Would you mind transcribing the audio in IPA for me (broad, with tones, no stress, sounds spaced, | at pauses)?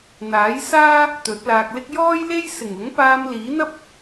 n̪ aː˨˥ j s aː˥ | t̪ ɵ˨˥ t̚ l aː˧ k̚ l ɪ˥ k̚ j ɔː˥ j l e˥ j s ɪ˨˩ ŋ ʊ˨˥ ŋ p aː˧ m l iː˨˥ n̪ ɐ˥ p̚